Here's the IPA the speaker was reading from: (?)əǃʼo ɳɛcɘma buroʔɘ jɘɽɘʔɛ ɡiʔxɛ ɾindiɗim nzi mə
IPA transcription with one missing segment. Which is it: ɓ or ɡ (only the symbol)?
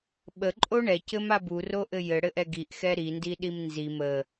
ɓ